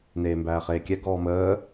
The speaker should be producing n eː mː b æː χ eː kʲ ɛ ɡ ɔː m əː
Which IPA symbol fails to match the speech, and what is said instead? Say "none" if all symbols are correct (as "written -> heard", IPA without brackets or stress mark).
mː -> m